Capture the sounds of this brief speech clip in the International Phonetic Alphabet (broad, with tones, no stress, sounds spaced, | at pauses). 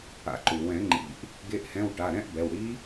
a̰˨˦ ǃ u˩ w ɛ̃˨˩˦ ŋ͡ǃ ḭ˨˩˦ ʔ | ɡ e˨˦ ʔ h ɛ̃˩˧˩ w ʈ a˩˧˩ ɾ ɛ̃˦˥ ʔ b ɛ˩˧˩ w ɽ i˦˥